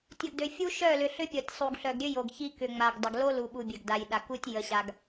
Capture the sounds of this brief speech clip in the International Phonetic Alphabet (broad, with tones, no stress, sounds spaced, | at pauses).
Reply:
tʲ ə˨ ɡ d ø˨ fʲ u˦ ʃ œ˦˨ l ʏ˨ ɬ ʏ˦ pʲ ɔ˨ tʲ sˤ u˨ ɡ ɬ œ˨ ɡ ɾʲ ø˦ j o˨ ɡ ç i˦ k ʏ˨ ŋ͡m a˨ ɡ dˤ ə˨ ɡ l o˦ l u˨ ɓ u˨ bʲ ø˨ ɡ d a˨ j ɗ a˨ k u˦ tʲ j ə˨ ɕ a˨ ɡ